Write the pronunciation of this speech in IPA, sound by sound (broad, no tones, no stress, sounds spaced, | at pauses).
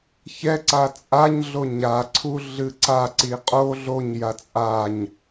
ç ɛ ǀ a t͡sʼ a ɲ ɮ o ɲ a ǀʰ u ɮ ɨ ǀ a ǀ i qʼ o ɮ o ɲ j a t͡sʼ a ɲ